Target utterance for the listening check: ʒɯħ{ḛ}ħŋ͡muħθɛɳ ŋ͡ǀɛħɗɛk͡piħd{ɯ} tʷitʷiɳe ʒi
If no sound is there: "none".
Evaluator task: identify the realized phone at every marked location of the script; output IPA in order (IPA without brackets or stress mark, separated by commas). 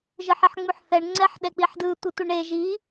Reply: e, ɯ